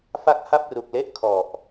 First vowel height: low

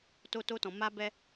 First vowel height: mid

